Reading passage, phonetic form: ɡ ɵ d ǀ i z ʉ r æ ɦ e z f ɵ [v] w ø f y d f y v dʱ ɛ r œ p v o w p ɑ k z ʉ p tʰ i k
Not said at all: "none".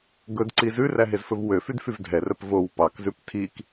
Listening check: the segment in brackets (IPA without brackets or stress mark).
v